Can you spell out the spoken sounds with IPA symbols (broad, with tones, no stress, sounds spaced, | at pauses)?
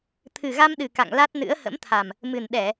t̪ʰ ɨ˨˩ ɣ a˧ m ɗ ɨ˨˩ k a̰˧˨ ŋ l a˦˥ t̚ n ɨ̰˧˥ ə̯ h ə̰˧˥ m t̪ʰ a˨˩ m | m ɨ˨˩ n ɗ ɛ˧˩˨